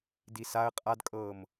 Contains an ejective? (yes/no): yes